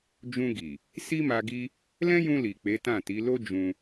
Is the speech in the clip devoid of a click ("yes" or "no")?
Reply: yes